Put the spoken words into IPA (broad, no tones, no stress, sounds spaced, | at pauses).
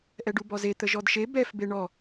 ʔ ɛ ɖ u b ɔ z e t̪ ə ʒ ɔ d ʃ e b ɛ f b e ɳ ɔ